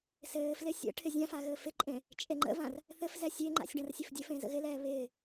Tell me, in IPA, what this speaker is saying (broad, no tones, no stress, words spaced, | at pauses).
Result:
sɘːflɪ sʲə̰ ʈʰɪzʲãfa ɣɘːfɪǃʼẽ | t͡ʃʼeŋ͡ǃə̰vãr | θɘfzɛ sʲeŋ͡ǃa̰sʲ ɖãrsʲɘfdʲɘfẽ zə̰ɣɪlɛː βɪː